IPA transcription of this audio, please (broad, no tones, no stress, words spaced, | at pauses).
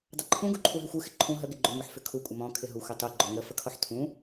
dˤəǃʰũ ɡuǃʰuɦɪxʷɯ xɪǃʰũ ɦə ɡɪɡ͡ǃʏ ŋʏħfʏkʰu kʷʼɪmɔ̃ kʰɪɦu xʷɪtˤu ɡ͡ǃɔŋə fəkʰɔħtʰũ